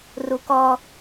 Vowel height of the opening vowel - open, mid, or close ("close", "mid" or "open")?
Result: close